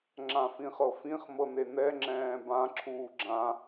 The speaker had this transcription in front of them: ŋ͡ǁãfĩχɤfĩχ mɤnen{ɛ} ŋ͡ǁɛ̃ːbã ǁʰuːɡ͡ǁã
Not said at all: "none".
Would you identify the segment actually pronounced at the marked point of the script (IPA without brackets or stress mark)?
ɛ